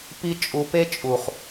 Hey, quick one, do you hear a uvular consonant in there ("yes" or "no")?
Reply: yes